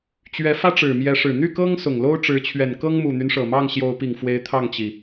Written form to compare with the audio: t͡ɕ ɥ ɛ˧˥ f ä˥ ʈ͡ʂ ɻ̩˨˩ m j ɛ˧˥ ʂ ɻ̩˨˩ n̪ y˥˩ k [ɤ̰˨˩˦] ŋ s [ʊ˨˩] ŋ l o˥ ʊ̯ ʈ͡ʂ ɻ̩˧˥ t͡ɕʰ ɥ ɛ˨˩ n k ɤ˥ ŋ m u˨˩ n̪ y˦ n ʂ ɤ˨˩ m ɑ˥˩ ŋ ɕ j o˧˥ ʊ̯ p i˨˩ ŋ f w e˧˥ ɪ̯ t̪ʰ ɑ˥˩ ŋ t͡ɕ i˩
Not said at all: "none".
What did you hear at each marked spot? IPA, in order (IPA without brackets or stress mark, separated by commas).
ɤ˥, ʊ˨˩